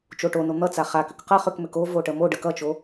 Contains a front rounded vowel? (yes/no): yes